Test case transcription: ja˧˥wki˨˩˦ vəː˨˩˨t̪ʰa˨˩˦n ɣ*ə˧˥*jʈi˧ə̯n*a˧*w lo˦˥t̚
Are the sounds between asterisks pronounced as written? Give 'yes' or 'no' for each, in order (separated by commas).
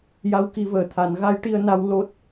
no, yes